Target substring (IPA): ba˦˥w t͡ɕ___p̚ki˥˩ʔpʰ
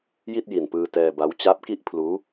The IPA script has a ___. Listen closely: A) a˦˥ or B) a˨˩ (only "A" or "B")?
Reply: A